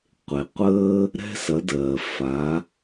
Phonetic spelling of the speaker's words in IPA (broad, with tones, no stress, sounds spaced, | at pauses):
qʷ e˩ qʷ əː˧ | ɾ ɛ̤˧ s ɐ˩˧ d ɜː˩ f a˩˧